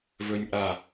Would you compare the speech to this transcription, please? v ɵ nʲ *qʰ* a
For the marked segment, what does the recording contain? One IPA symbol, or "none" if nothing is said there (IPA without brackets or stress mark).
ʔ